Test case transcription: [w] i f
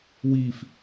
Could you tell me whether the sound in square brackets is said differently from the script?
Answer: no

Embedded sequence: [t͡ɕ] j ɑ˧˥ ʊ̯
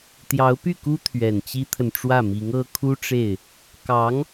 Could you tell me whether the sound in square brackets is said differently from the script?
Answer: yes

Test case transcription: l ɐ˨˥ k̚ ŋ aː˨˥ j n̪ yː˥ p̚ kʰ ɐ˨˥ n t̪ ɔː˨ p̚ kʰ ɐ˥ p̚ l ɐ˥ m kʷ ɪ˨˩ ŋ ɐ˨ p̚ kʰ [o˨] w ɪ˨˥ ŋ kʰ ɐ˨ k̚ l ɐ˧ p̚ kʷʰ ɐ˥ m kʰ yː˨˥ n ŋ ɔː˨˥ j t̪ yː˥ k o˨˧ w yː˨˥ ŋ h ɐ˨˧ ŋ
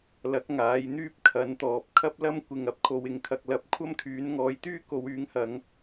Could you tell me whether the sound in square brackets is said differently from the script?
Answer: yes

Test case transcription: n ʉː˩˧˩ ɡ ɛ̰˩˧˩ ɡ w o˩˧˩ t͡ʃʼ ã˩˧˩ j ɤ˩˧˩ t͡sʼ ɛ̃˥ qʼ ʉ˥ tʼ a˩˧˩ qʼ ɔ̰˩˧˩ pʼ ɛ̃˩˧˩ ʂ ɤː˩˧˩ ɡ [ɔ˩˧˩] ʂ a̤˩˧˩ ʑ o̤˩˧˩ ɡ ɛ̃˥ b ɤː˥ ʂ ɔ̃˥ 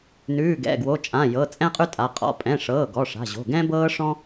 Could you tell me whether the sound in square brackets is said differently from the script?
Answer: no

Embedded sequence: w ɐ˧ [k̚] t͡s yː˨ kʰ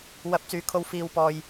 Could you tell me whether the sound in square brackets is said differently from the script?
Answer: yes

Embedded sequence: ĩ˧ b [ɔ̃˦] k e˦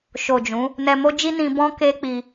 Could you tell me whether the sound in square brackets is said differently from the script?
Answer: no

